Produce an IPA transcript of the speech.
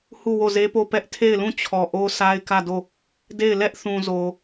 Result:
h u˦˨ w o˦˨ z e˦ p o˦˨ p ɛ˦ ʔ tʰ e˦˨ ɪ̯ l ũ˦˨ t͡ɕʰ ɔ˨ ʔ o˦ s a˦ ɪ̯ k ä˦˨ d o˦˨ | d e˦˨ ɪ̯ l ɛ˦ ʔ θ ũ˨ z o˨

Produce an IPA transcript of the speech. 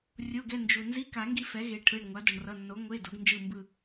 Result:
rʲ o˩˧˩ ɡ ɛ˩˧˩ n d͡ʒ u˩ n z i˧˥˧ k a˨˩˦ ŋ ɡ i˦˨ f ɛ˩˥ ɣ e˩˥ ʈʰ ɯ˩˧˩ ɳ ŋʷ a˩˥ d ʌ˩ ɳ r ʌ˩˧˩ nː o˩˥ ŋʷ e˧˥˧ d o˩˥ ɡ n d͡ʒ ɯ˦˨ m b ɯ˦˨

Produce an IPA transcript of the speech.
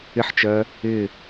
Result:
ɪ ħ t͡ʃ ɜ | ɪ

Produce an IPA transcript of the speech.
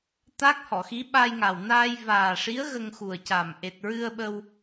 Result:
t̪ a˦˥ k̚ h ɔ˨˩˨ x i˧˥ ɓ a˧ j ŋ a˨˩ w n aː˧ j v aː˨˩ ʂ i˧˥ ə̯ ɣ ə˧ ŋ x u˨˩ ə̯ c a˨˩ m ʔ e˨˩ t̚ ɹ ɨ˧ ə̯ ɓ ə˧ w

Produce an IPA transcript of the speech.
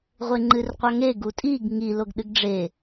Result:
ʁʷ e ŋ͡ǃ ɨ r qʷ a ŋ e ɡ u tʼ i ɡ ŋ i l o ɡ ɗ ɨ ɡ ɖ͡ʐ e

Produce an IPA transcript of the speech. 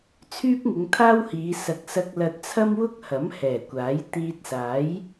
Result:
t͡sʰ yː˥ p̚ ŋ ɪ˨˧ ŋ t̪ʰ aː˥ w h iː˨˧ s ɐ˨ k̚ s ɐ˧ k̚ l ɐ˧ t̚ t͡sʰ ɐ˥ m w ʊ˥ k̚ h ɐ˨˥ m h ɛː˨˩ kʷ aː˨˥ j t̪ iː˧ t̚ s aː˨˥ j

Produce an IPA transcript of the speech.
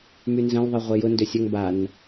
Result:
m y n z ə̃ l ðˤ e ʁʷ ɛ j ʊ n d ʏ sʲ ə ŋ b a n

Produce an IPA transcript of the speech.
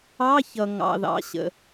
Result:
ɑ˧˥˧ ç ʌ˨ ŋ ɑ̰˧˥˧ ð ɑ̰˧˥˧ ɕ ə̰˥˧

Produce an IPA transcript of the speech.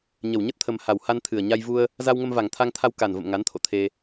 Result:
ɲ ə˨˩ w ɲ ə˦˥ t̚ t̪ʰ ə˧ m h a˨˩ w h a˧ n t̪ʰ ɨ˨˩ ə̯ ɲ a˧ j v u˧ ə̯ | z a˧ w ŋ ə˧ m v a˨˩ ŋ t̪ʰ a˧ ŋ t̪ʰ a˧ w k a˨˩ n v ə̰˧˨ m ŋ a˨˦ n t̪ʰ o̰˧˨ t̪ʰ e˧

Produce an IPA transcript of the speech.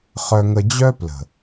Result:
χ œ˧ ŋ ə˧ d͡ʑ œ˦ p l ə̤˨

